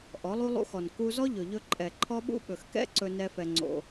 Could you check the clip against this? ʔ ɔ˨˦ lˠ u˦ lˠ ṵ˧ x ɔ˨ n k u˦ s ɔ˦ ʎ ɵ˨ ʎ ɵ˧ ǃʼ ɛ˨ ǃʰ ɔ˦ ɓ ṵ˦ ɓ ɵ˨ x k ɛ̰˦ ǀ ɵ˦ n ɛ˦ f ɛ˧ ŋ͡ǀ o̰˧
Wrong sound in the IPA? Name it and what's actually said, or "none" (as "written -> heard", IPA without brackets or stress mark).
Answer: s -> z